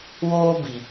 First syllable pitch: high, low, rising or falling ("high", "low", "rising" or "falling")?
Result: high